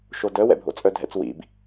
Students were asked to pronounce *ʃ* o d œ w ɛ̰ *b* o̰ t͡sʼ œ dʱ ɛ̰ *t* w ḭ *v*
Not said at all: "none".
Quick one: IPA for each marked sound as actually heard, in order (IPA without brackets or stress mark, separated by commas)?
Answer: ʃ, bʱ, t͡s, b